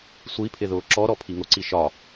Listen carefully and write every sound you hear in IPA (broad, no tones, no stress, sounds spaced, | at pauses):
sʷ i pʰ ɪ ð ʊː ǁ ɔ ɾ ɔ pʰ i ŋ ʊ ǀ i ʃ ɒ